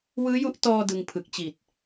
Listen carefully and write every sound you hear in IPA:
w ɯː˦˥ j u˦˥ ʔ t ɔː˧ d ɯ˧ ŋ pʰ ɯ˨˩ k̚ t͡ɕ i˨˩ t̚

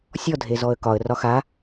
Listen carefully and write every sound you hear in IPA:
sʲ ɔ dʱ e z ɔ ə̯ k ɒ ə̯ r ɒ x a

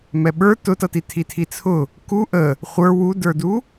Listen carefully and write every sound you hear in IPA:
m ɛ ɓ ə˞ t ʊ t ʌ t i tʰ i tʰ i t͡sʰ ʊ | k u ʔ ə | χʷ ə˞ w u d ə˞ d u

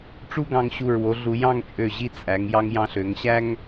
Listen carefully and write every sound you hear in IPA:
ʈ͡ʂ u˥ ɡ ɑ̃˧ ŋ ɕ u˧˩ ɹ w o˩˧ ɮ u˩˧ j ɑ̃˥˧ ŋ t͡ʃʼ ø˧˩ ʑ i˥˧ t͡sʼ æ˩˧ ŋ j ɑ˧ ŋ j ɑ̃˧ ɬ ø˩˧ ŋ ɕ æ˥ ŋ

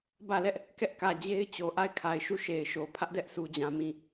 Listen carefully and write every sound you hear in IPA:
b ä˦˨ l ɛ˦ ʔ | k ɛ˦ ʔ k ä˨ d͡ʑ e˦ ɪ̯ t͡ɕ o˨ ʔ a˦˨ ɪ̯ kʰ a˨ ɪ̯ ʃ u˦˨ ʃ e˨ ɪ̯ ʃ o˨ pʰ ä˦ ʔ d ɛ˦ ʔ sʰ u˨ d͡ʑ ã˨ m ĩ˦˨

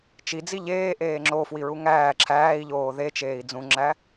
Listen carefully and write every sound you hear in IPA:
t͡ʃ i d͡z i ʎ eː ʔ eː ŋ͡ǁ o f w i ɹ u ŋ æː ǁʰ æː i̯ ʎ oː ð e t͡ʃ eː i̯ d͡z ũ ŋ͡ǁ æ

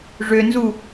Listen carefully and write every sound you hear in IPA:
ʐ ø n z u

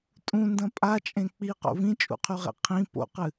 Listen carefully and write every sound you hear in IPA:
tʼ ũ n d ɐ̃ pʼ a t͡ʃʼ ẽ k͡p i q o̰ v ĩ t͡ʃʼ ṵ qʰ ʉ ʁ ḛ qʰ ĩ p o̰ q ɨ

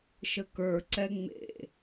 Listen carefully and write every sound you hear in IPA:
ʃ ə k ə˞ ǀ ɛ ŋ͡m ḛ

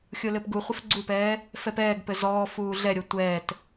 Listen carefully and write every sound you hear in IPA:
xʲ o l ɘ p ɡ u χʷ ɘ f ɡ͡ǀ u p ɛː | f ɛ p ɛː ɡ p ɘ z ɔː f uː ɮ ɛ ɾʲ o tʷ ɛː t

